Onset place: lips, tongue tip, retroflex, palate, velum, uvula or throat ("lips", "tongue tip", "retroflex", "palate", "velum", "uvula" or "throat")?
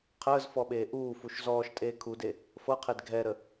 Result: uvula